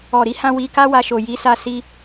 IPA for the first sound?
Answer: ɔ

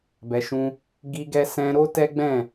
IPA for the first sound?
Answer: b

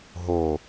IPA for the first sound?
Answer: ɦ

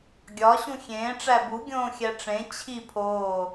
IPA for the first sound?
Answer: ɡʲ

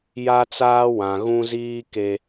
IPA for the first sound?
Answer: j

